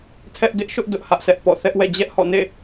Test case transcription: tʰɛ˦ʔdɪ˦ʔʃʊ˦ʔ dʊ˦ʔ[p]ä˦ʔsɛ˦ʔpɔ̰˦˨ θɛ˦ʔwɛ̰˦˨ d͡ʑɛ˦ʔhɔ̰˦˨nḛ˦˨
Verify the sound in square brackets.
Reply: incorrect: h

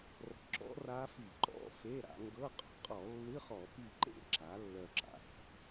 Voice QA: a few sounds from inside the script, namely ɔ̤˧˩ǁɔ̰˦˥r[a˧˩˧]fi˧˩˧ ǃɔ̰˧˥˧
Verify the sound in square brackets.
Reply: incorrect: a˦˥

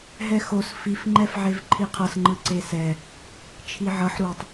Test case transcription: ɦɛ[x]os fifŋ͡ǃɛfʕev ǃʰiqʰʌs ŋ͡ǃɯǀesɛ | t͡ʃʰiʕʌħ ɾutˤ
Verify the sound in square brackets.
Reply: correct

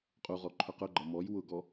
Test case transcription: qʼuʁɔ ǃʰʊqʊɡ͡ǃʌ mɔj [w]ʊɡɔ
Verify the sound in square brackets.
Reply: correct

